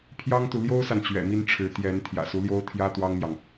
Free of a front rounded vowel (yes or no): yes